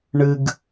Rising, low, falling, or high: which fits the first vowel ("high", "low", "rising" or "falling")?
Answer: low